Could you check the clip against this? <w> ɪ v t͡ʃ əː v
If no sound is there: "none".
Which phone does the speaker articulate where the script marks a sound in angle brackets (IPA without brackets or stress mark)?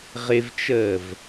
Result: ʁ